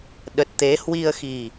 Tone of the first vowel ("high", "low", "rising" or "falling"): low